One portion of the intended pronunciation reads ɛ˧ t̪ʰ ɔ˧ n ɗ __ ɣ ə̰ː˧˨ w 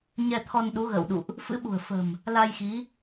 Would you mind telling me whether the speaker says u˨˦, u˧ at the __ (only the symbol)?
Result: u˨˦